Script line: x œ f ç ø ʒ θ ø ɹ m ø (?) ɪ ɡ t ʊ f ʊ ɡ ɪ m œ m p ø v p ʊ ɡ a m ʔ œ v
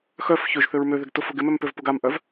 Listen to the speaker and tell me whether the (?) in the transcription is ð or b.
ð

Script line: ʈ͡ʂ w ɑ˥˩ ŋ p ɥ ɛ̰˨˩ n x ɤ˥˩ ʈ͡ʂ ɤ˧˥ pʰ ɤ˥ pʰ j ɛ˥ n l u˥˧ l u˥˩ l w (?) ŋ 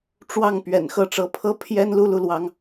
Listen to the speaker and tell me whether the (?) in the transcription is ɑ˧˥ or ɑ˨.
ɑ˧˥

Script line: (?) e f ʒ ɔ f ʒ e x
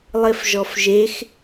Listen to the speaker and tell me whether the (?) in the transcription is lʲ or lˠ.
lˠ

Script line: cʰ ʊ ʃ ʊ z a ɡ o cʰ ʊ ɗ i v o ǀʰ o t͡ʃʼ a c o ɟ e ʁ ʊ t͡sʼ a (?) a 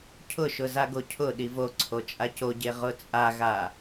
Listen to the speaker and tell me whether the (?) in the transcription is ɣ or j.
ɣ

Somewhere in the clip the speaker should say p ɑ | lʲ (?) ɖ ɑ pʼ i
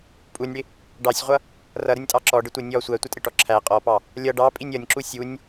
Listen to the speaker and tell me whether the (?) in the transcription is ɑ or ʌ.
ʌ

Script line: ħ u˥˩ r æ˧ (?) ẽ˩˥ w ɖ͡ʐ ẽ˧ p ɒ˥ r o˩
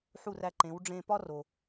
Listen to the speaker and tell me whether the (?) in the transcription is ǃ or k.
ǃ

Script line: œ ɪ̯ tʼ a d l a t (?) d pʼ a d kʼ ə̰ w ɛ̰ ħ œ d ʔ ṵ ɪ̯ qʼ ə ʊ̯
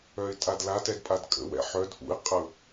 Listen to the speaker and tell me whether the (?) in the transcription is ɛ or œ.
ɛ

